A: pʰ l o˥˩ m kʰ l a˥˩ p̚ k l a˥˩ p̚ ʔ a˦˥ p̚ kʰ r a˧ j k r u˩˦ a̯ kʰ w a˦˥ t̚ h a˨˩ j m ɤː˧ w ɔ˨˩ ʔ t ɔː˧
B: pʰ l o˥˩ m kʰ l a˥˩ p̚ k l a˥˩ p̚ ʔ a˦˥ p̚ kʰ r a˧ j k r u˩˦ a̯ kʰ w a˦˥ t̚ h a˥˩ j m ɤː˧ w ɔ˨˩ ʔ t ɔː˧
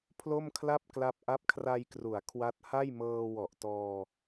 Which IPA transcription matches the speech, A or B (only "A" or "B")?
B